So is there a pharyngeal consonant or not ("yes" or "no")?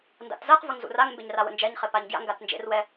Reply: no